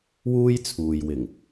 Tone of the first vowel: high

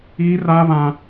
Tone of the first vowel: high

